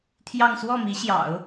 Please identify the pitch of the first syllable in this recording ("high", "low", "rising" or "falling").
falling